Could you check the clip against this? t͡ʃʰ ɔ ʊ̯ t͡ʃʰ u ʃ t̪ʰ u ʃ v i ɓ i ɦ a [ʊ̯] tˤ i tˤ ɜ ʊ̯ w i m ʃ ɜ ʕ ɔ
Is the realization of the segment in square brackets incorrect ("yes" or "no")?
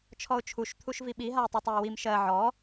no